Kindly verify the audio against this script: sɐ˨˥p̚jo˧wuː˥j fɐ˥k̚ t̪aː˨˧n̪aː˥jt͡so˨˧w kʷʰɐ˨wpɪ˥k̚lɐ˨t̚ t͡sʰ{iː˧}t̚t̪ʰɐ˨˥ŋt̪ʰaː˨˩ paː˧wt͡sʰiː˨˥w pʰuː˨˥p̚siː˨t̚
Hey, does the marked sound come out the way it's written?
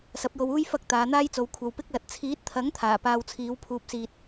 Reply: no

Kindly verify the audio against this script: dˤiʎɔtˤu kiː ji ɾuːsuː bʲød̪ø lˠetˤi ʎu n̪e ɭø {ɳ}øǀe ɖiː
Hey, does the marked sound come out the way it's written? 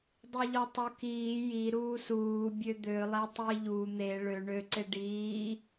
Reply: yes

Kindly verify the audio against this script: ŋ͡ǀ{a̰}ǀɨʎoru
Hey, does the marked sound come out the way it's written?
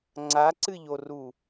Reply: no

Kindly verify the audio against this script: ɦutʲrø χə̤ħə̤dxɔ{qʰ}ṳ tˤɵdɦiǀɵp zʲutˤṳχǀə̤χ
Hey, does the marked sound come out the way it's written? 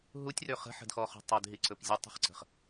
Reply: no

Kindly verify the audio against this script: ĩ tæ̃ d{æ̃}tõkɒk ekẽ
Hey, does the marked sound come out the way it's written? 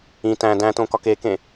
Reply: yes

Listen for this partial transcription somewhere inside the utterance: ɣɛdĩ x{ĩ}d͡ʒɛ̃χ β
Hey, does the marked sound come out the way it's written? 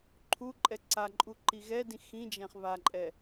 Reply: yes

